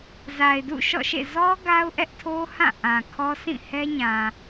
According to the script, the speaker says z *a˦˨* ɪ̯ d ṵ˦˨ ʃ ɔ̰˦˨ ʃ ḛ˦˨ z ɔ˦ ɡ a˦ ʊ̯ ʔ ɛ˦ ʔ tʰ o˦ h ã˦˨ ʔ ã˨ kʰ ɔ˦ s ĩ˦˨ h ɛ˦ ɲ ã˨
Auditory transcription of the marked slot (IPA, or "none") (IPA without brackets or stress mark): a˨